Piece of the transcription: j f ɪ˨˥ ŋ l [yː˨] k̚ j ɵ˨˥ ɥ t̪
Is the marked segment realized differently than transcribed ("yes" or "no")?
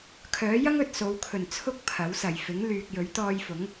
no